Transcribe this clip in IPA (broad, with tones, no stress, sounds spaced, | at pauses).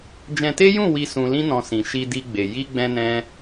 d͡ʒ ɛ̃˧ t e˦ j ũ˦˨ w i˧ s ũ˧ l ĩ˦ n ɔ̃˧ s ĩ˨ ʃ i˧ d i˧ ɡ͡b e˨ j i˧ ɡ͡b ɛ̃˧ n ɛ̃˧